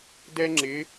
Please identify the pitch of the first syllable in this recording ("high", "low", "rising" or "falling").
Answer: high